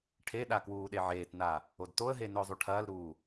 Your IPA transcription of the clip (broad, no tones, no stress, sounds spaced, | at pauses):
ʈʰ e ɗ a k w uː ɗ e ʕ eː t n a | o d t o ə̯ ɦ e n ɵ ʊ̯ zˤ u ʈʰ ɐː l ɾ uː